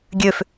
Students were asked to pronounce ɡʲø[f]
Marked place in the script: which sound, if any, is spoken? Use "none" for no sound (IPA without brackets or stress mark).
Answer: f